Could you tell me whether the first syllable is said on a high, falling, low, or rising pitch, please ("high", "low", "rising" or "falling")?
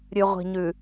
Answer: low